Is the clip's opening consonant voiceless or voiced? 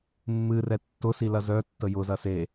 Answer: voiced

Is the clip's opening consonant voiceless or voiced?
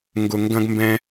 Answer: voiced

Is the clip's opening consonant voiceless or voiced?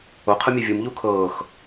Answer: voiceless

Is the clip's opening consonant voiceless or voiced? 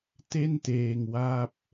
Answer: voiceless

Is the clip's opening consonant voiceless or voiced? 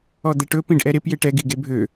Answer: voiced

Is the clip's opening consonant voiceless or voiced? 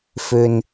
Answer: voiceless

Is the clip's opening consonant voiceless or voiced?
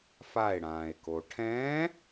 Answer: voiceless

